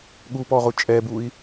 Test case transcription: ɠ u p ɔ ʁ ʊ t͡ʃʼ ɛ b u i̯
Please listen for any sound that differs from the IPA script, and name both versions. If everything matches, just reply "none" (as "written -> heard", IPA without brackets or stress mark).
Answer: none